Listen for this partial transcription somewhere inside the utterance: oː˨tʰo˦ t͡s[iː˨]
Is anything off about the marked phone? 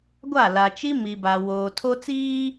yes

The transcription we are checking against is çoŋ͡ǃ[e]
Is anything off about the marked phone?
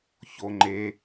no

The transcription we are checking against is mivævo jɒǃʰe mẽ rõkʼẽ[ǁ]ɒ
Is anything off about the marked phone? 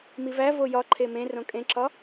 no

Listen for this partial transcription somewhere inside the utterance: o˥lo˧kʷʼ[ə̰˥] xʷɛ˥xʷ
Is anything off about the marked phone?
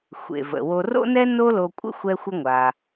no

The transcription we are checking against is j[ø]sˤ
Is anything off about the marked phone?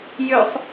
no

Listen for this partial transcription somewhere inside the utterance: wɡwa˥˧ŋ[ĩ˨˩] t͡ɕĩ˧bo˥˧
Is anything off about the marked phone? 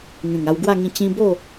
yes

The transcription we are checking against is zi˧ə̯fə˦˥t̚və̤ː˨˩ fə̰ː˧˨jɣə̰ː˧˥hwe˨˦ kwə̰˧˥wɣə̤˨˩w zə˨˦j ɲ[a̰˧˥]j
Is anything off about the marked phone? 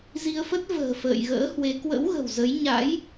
no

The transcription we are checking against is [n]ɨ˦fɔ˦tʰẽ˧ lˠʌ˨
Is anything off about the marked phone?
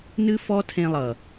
no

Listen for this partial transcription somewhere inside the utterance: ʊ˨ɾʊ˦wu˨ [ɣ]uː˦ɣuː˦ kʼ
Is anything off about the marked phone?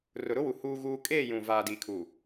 yes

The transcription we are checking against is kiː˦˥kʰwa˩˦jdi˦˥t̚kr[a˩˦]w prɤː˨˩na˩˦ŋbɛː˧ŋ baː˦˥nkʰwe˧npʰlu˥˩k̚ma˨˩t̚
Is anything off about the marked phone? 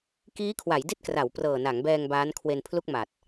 no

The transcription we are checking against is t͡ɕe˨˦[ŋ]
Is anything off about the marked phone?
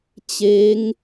no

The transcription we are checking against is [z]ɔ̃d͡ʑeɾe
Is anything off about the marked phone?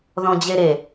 yes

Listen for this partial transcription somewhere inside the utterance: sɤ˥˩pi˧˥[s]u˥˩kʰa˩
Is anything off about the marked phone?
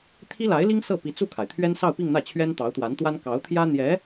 yes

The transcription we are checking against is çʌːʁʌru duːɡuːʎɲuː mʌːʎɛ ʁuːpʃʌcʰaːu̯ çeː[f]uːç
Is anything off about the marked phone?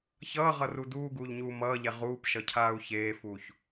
no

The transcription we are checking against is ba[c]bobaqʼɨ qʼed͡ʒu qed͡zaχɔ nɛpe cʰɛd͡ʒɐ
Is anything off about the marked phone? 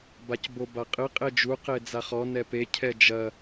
no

